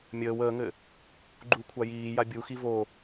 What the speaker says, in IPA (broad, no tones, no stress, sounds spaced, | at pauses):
mʲ əː w əː ŋ ɘ | ɡ͡ǃ u kʷʰ a j iː j a bʲ u x i v o